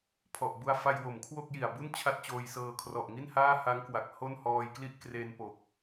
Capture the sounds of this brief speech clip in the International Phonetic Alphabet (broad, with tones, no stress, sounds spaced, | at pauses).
pʰ ɔ˨˩ ʔ b u˧ a̯ f a˧ j w o˩˦ m kʰ w o˥˩ k̚ j i˨˩ a̯ b u˥˩ n t͡ɕʰ a˥˩ t̚ t͡ɕ oː˧ j s ɤː˧ kʰ r ɔ˨˩ ʔ ŋ i˥˩ n h aː˥˩ h a˦˥ ŋ k w a˨˩ k̚ h o˥˩ n h ɔː˧ j k l i˥˩ ʔ k r e˧ n p o˨˩ k̚